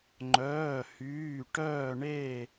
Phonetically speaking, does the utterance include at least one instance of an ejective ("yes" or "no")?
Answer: no